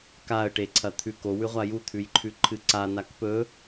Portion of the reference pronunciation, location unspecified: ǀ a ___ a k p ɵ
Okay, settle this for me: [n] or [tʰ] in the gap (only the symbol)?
n